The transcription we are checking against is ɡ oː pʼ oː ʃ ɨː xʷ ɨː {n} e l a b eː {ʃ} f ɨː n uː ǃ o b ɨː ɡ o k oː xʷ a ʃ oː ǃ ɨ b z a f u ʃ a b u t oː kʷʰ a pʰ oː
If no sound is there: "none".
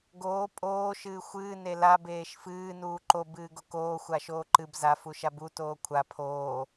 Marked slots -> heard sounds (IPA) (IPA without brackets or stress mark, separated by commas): n, ʃ